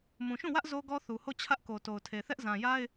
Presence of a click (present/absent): absent